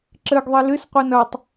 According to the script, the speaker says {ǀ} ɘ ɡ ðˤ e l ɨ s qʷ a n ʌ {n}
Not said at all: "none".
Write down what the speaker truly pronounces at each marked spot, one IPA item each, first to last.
ǁ, tˤ

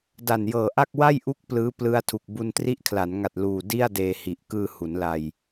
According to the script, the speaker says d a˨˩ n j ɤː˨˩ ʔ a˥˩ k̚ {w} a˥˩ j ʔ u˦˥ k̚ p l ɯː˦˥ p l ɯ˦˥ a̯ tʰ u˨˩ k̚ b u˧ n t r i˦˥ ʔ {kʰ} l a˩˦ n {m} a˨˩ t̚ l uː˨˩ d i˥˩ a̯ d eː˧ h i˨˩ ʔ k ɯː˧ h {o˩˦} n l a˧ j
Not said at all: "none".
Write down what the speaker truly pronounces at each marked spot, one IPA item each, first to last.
w, kʰ, ŋ, u˩˦

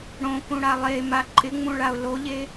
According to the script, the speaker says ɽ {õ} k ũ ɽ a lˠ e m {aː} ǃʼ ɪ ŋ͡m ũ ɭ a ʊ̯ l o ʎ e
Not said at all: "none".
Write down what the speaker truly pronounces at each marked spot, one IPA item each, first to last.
õ, a

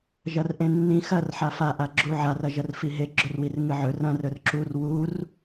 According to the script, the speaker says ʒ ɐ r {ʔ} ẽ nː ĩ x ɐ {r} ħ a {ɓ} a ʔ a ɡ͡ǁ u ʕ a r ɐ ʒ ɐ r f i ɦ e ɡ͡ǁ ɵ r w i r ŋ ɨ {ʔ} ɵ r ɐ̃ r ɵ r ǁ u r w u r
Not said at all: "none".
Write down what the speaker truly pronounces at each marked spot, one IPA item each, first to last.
ʔ, r, f, ʕ

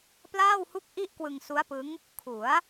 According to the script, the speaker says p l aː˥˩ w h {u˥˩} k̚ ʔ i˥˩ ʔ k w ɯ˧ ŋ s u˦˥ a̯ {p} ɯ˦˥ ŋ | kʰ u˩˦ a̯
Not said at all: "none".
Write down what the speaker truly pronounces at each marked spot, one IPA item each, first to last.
u˥˩, p

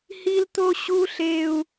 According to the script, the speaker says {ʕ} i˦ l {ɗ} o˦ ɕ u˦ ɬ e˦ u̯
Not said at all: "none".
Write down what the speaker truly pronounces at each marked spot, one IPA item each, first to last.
h, t̪

